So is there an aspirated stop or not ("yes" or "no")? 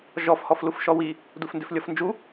no